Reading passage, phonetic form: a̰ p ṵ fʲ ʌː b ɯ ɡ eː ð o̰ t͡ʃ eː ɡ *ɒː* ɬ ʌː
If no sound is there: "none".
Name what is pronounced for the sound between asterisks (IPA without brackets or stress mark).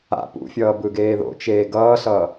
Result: ʌː